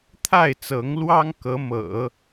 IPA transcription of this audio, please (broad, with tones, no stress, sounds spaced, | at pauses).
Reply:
t̪ʰ a˥˩ ɪ̯ t͡s ɤ˧˥ ŋ l w ɑ˥ ŋ k ɤ˧˥ m ɤ̰˨˩˦